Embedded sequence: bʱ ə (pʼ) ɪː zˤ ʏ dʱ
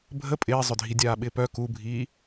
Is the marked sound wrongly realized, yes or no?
no